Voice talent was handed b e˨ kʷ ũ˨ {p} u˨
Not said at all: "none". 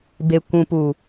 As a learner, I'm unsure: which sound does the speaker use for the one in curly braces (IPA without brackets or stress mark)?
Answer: p